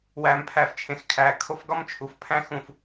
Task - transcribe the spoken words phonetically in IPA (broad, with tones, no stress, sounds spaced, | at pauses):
w æː˨ m pʰ æ˨ f t͡ʃʰ ẽ˨ x kʰ æː˨ kʰ o˦ f ɡ ɒ˦ m t͡ʃʰ u˨ f pʰ æ̃˦ x ũ˨ f